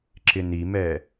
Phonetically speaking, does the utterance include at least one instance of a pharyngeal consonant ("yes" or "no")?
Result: no